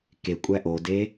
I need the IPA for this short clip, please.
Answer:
k e kʷʼ æ ʔ o d e

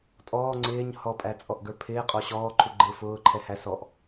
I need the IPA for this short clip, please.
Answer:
tʼ ɔː ŋ͡ǀ ɪː ɲ h ɔ pʼ æ t͡sʼ ɔ ʔ ɡ ə˞ pʰ ɪː qʼ ɔ ɕ ɔː ǃʰ u ɡ͡ǃ ɪː f ʊː ǃʰ ɛ h æ s ɔ ʔ

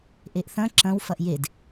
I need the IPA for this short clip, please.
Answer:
ʔ e ʔ θ ɐ̃ ǁ ɐ̃ w f ɐ ʔ j e d

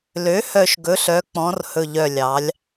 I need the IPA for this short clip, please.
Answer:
l ø˩˥ h œ˨˩ ʃ ɡ ɵ˩˧ ɬ œ˩˧ k͡p ɔ̃˩˧ r h ɵ˨˩ ʎ œ˨˩ lʲ ɑ˩˧ lʲ

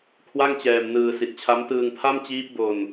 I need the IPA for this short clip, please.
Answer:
kʰ w a˥˩ ŋ t͡ɕ ɛː˧ m n ɯː˧ s i˨˩ t̚ t͡ɕʰ a˦˥ m t ɯː˧ ŋ pʰ a˥˩ m t͡ɕ iː˦˥ p̚ b o˧ n

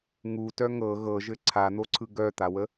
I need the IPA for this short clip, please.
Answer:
ŋ u t œ ŋ ɤ ɣ ɤ ʒ ɘ ǀʰ a n̪ o ǀʰ ɯ ɡ œ t̪ a w ə

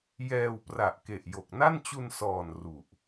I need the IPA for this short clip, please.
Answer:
j ɛː˧ w p r a˨˩ ʔ k e˨˩ ʔ j o˨˩ k̚ n a˥˩ n t͡ɕ u˧ n s ɔː˨˩ n r u˨˩ ʔ

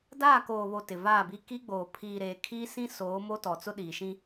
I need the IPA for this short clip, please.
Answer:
d aː˦˨ k oː˨ β o˨ t ɪ˨ v aː˦˨ b i˦ k i˦ ɡ͡b oː˨ pʰ iː˨ ɾ eː˨ kʰ iː˦ s ĩ˦ s oː˨˦ m o˦ t ɔ˨ t͡s ʊ˦ ɗ iː˨ ʃ ĩ˦

